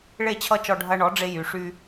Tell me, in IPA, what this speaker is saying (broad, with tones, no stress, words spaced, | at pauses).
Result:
ɭe˥˩t͡ɕʰʌ˥˩t͡ʃɔ˧ ɖʱɐ˧ɳɔ˩˥ɖ͡ʐe˧ jy˩ʂy˧